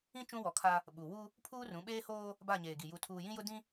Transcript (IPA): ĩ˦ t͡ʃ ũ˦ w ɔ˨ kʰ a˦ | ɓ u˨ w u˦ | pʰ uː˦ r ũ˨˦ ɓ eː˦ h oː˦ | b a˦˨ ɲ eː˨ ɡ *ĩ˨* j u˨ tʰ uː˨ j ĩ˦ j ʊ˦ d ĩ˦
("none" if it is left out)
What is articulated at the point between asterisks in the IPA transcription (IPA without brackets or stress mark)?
i˨